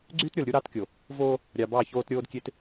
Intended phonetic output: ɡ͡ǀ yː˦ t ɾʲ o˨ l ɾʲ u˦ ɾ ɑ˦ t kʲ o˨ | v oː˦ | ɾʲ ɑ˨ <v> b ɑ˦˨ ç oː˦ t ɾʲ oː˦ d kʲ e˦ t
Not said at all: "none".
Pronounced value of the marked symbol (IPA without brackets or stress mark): none